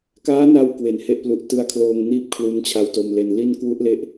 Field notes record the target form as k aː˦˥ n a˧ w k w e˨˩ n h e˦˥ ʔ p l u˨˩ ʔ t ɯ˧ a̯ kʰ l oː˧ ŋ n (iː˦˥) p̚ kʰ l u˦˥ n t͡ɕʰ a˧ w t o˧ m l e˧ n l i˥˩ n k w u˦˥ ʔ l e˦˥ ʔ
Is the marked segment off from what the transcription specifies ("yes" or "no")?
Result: yes